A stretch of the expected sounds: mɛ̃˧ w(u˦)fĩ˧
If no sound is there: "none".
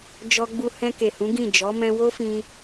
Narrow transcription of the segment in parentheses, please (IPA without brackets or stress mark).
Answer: o˦